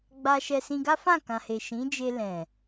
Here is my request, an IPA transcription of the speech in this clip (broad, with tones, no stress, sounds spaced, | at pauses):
ɡ͡b a˧ ʃ ɛ˧ s ĩ˧ ɡ a˦ f ã˦˨ k ã˨ h e˨ ʃ ĩ˨˦ d͡ʒ e˧ l ɛ̃˨